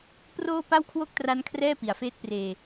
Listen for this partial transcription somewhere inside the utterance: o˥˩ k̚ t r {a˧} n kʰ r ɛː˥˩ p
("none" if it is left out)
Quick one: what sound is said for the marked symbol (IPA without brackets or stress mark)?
a˦˥